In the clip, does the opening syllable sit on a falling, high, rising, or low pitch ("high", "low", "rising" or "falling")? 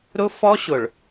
high